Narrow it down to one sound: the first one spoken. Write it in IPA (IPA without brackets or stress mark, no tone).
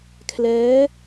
kʰ